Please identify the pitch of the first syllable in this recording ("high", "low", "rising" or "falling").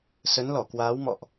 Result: rising